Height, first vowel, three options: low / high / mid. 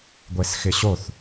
mid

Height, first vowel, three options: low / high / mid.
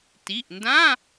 high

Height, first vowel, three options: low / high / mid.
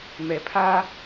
mid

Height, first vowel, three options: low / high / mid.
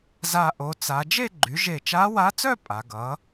low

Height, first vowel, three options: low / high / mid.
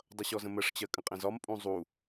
mid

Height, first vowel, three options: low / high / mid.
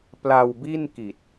low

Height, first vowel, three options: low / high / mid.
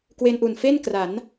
mid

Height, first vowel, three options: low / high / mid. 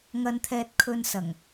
low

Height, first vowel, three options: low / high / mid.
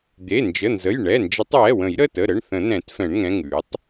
mid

